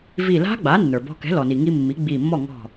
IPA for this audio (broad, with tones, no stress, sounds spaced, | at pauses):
v i˧˩ l a̤˦˥ ɡ͡b a˩˥ nː ə˞˩ b ɔ̤˧ k ɛ̤˩˥ l ɔ˩ n i˩ ŋ i˧ mː i˩˥ ɡ͡b i˧˩ mː ɔ˥˩ ŋ ɔ̤˧˩